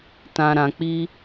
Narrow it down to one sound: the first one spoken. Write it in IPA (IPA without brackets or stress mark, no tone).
t